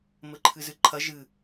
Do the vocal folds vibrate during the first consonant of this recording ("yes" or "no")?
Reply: yes